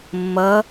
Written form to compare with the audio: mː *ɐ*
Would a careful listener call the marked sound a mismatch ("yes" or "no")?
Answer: no